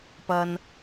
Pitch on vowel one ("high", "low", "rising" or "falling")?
low